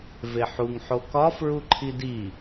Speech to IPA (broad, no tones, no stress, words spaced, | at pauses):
veħuŋ ħokɒ fɹuǃʰidi